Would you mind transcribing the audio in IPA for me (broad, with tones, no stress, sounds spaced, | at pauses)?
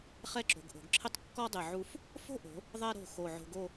χ ɛ˥˧ ǁ o̤˩˧ ɡ ʔ o̤˩˧ ɡ ǁʰ ɪ˥ tˤ kː ɔ˥ dˤ ɪ˧˩ ʕ u˧ f | f o̤˥ ʔ o̤˩˧ | ðˤ ɛ˧ ɾ o̤˧˩ x o˧˩ ʕ o̤˧ ɡ o˥˧